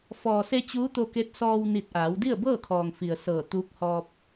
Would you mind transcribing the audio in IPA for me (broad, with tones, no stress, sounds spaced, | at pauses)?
f ɔː˩ s e˧ t͡ɕ uː˧˥ t̪ o˧ k e˧˥ t̚ s ɔː˧ w n i˧˩ t̚ ʔ aː˩˧ w d i˥˨ ə̯ b ɤː˥˨ kʰ ɔː˩ ŋ f i˩ ə̯ s ɤː˧˩ t̪ uː˧˥ k̚ h ɔː˧ p̚